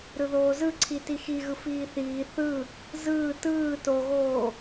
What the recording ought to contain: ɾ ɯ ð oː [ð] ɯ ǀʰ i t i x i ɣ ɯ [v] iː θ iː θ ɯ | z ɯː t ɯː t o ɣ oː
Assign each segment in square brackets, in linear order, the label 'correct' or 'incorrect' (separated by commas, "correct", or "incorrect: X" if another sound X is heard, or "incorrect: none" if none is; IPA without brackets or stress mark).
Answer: incorrect: z, incorrect: f